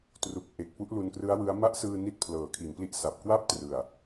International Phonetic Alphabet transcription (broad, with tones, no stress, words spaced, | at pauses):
tru˨˩k̚ʔe˨˩k̚ pu˦˥ʔlu˧nkrɯ˦˥a̯wɯ˦˥a̯ ma˦˥ʔsɯː˧ ni˦˥t̚pʰlɤː˩˦kʰi˩˦npli˦˥ʔ sa˨˩p̚kwa˥˩p̚trɯ˨˩a̯